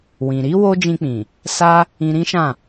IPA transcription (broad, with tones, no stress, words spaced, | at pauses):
wĩ˨ɾi˨˦ wo˦d͡ʒĩ˧k͡pĩ˨ | sa˧ | ĩ˧ɾĩ˦ʃã˦˨